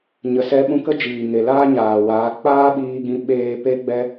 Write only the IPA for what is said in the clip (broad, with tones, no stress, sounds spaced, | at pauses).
ɲ ə˨ s ɛ˧ ɓ ũ˧ k ə˦ d͡ʒ iː˨ ŋ e˨ l aː˦ ɲ aː˨ w aː˨˦ k͡p aː˦ ɓ iː˧ ɡ ĩ˧ ɓ eː˧ p e˦ ɡ͡b ɛ˦